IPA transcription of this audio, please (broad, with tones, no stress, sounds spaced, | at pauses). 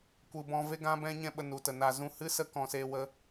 kʷ ɨ˨ b ɔ̃˧ v e˦ ɡ ã˦ b ɛ̃˦ ɲ ɛ̃˦˨ ɓ ə˧ n u˨ t ə˨ n a˧ z ũ˦ h ɨ˦ s ə˦ k ɔ̃˦ s eː˦ w ə˦